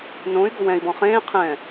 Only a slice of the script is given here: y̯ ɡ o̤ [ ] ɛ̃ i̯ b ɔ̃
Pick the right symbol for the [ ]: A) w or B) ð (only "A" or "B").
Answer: A